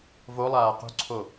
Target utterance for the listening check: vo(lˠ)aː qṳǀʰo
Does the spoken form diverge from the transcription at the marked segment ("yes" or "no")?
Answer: no